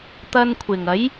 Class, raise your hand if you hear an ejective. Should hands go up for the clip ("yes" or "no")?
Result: no